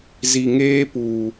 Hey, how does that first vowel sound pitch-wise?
low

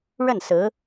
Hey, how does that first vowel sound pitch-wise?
falling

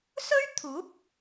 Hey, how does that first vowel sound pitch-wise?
high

